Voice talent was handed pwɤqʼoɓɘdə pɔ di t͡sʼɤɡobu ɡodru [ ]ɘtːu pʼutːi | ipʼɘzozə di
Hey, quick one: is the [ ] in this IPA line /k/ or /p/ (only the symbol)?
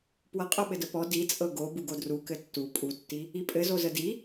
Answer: k